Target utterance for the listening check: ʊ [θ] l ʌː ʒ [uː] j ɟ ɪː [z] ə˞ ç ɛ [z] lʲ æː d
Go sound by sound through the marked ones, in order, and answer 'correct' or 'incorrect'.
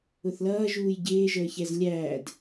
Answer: correct, correct, incorrect, correct

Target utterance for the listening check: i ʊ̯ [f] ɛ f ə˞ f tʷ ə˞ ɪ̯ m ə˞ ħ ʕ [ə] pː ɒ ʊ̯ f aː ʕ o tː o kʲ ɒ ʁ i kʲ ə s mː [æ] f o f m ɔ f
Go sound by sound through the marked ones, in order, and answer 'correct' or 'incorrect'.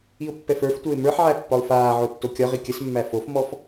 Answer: incorrect, incorrect, correct

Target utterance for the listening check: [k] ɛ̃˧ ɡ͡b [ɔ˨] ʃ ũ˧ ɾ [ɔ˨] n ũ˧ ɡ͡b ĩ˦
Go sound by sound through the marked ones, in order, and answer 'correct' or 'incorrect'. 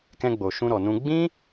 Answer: correct, incorrect, correct

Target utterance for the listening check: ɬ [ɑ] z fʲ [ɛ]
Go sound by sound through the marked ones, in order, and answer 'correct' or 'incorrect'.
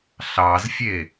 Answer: correct, incorrect

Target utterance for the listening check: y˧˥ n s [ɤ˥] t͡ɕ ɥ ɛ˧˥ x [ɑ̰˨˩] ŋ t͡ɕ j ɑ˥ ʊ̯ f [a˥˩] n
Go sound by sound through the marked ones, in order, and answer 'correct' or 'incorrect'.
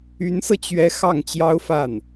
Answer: incorrect, incorrect, correct

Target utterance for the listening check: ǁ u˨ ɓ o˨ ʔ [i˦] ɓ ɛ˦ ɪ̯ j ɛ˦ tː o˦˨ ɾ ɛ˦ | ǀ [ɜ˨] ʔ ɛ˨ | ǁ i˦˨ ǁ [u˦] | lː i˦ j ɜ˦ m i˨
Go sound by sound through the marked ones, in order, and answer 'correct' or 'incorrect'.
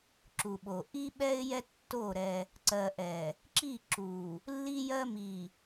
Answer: correct, correct, incorrect

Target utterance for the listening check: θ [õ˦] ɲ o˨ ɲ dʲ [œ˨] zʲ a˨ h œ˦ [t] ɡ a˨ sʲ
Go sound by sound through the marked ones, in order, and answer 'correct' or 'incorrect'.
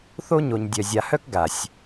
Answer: incorrect, correct, incorrect

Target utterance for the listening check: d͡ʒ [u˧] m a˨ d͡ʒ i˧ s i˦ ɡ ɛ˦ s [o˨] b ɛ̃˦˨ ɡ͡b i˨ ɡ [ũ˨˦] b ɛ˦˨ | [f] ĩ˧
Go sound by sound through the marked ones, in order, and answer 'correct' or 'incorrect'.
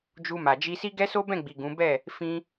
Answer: correct, incorrect, correct, correct

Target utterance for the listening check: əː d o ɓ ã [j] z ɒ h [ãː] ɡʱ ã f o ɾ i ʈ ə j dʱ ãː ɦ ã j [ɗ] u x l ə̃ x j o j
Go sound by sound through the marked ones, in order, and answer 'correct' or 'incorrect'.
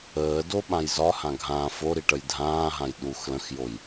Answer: correct, incorrect, correct

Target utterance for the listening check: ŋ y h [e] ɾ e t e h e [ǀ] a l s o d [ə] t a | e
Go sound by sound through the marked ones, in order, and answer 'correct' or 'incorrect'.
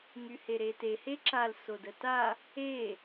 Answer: correct, incorrect, correct

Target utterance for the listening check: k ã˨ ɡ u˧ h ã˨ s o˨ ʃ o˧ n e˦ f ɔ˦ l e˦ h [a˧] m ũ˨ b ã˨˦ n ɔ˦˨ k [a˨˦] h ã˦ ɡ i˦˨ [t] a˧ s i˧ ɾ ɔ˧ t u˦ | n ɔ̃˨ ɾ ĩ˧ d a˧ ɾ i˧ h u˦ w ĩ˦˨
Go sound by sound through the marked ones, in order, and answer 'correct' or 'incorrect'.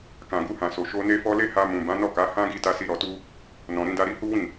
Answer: correct, correct, correct

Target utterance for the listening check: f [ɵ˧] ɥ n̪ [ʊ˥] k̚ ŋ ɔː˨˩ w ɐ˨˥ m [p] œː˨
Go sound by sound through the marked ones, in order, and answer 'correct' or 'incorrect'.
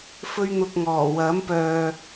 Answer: incorrect, incorrect, correct

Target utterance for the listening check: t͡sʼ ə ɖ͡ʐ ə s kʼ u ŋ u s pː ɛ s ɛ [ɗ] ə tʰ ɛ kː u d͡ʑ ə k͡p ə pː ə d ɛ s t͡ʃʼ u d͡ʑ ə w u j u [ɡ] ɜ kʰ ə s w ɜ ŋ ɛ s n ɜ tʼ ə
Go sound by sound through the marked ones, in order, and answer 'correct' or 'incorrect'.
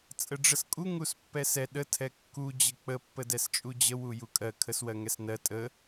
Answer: correct, incorrect

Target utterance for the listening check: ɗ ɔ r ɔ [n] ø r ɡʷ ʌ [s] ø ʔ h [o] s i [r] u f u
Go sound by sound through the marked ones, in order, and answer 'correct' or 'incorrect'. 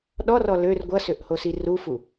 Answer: incorrect, correct, correct, correct

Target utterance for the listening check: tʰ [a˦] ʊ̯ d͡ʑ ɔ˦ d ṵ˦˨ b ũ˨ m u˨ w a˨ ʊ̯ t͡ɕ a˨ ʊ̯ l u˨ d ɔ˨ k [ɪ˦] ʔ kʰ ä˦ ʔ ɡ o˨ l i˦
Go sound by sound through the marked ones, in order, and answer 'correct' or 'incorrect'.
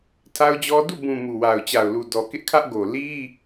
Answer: correct, correct

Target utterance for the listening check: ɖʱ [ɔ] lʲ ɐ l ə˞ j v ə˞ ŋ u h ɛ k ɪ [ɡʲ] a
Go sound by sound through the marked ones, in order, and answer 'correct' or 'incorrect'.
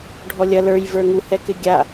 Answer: correct, correct

